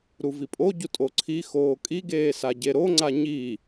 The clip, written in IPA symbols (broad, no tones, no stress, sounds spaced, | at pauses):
ɾ u v i pʼ o ɟ u tʼ o ǀʰ i x oː kʼ i ɡ eː s a ɟ e ɾ o ŋ͡ǀ a ɲ i